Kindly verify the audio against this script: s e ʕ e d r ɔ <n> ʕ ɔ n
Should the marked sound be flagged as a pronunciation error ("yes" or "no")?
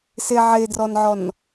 no